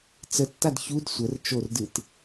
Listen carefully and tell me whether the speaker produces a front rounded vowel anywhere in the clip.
no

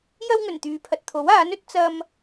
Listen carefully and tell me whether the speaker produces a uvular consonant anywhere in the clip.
no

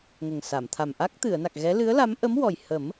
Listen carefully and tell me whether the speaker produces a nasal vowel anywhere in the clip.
no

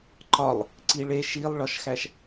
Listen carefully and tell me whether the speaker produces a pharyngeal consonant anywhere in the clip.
no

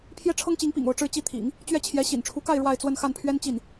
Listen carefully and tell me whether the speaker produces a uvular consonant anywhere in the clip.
no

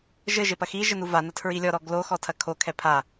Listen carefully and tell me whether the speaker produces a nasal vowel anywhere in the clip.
no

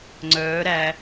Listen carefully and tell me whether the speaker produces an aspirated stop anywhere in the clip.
no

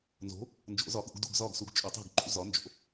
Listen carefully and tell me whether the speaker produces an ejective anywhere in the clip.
yes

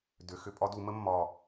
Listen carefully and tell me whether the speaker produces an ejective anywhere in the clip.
yes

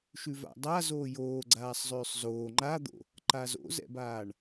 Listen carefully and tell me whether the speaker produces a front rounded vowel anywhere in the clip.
yes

